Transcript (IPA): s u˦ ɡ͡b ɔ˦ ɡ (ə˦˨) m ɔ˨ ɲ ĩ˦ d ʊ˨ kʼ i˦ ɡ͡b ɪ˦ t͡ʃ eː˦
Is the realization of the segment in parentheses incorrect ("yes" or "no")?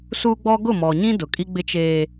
yes